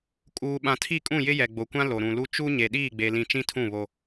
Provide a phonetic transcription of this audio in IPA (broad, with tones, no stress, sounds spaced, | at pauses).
kʼ uː˨ ɓ ã˨ tʰ i˦˨ kʼ ũ˦˨ j ɪ˦ j ɛ˨ ɡ͡b o˨ kʷ ã˦ l o˨ ɾ ũ˨ l u˦ t͡ʃ u˦ ɲ e˨ ɗ iː˦˨ ɡ͡b e˨ l ĩ˨ t͡ʃ ĩ˦ tʰ ũ˦˨ β o˦